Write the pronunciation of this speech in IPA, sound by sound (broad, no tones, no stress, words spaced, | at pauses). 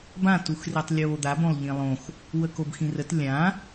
bãtuxritˤ lʲoːd̪abõlˠ ʎĩlˠõx | wəkobxĩrət lʲã